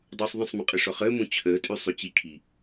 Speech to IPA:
dˤ uː sˤ ðˤ ə̃ sˤ m ə̃ qʼ ə ʂ ɔ χ əː m ũ t͡ɕʰ əː tʼ y sˤ y t͡ɕ i kʰ i

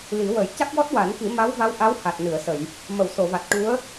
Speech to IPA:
l i˨˩˦ w ə˨˩˦ j c a˦˥ k̚ w ɔ˦˥ t̚ w a˨˩˦ n k i˨˩˦ m a˧˥ w v a˧˥ w ʔ a˧˥ w h a˨˩ t̚ n ɨ˨˩˨ ə̯ s ə˨˩˨ j | m ə˨˩˨ w s o˨˩˨ v a˨˩ t̚ ʈ u˧˥ ə̯

